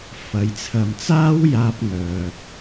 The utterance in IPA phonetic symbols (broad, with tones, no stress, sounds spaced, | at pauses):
f ɐ˨˧ j t͡sʰ ɐ˧ m t͡s aː˥ w j aː˥ p̚ ŋ œː˧ p̚